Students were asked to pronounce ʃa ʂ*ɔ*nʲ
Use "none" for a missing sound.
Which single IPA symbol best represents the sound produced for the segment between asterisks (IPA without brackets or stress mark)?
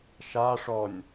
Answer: ɔ